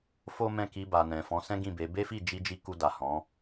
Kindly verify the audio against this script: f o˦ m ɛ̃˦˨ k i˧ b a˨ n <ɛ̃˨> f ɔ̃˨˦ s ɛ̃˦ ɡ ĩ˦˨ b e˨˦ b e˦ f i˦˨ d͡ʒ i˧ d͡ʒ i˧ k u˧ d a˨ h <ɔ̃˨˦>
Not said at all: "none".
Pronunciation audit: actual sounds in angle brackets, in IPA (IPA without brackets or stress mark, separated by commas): ɛ̃˨, ɔ̃˨˦